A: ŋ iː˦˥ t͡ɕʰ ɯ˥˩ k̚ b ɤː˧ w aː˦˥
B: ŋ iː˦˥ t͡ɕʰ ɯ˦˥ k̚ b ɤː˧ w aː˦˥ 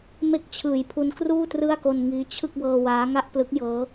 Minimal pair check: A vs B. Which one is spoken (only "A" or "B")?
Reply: A